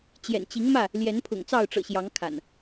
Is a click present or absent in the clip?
absent